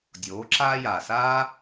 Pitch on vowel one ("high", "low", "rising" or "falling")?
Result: rising